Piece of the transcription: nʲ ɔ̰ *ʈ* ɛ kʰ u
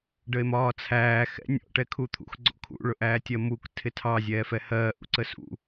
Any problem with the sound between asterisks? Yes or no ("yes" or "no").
no